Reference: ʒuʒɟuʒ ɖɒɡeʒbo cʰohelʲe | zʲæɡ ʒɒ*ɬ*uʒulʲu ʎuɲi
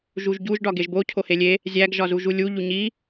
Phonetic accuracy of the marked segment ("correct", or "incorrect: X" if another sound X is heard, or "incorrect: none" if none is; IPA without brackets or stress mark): incorrect: z